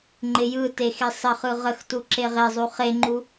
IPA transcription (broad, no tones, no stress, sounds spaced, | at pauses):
ŋ͡ǃ ɪ j ɯ t e x e sˤ ə χ ɯ ʁ ə x t u ǁ e ʁ e zˤ u χ e ŋ͡ǃ u